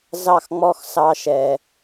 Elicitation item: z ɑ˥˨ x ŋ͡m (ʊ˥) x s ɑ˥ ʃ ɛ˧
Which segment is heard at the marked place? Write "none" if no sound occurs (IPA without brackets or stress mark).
ɔ˥